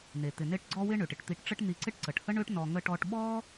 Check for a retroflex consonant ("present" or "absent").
present